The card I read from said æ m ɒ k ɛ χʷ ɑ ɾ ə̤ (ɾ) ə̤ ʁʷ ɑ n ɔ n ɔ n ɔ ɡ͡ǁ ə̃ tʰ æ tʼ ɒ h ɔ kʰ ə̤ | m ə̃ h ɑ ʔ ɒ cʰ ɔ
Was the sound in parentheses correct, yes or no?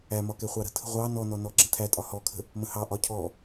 no